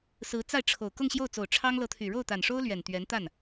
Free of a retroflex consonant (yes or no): no